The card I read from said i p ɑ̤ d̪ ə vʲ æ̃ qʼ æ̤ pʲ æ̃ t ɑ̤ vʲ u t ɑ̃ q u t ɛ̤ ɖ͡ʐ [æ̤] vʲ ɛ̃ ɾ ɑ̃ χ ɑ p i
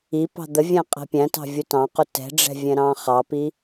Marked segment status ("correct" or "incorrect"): incorrect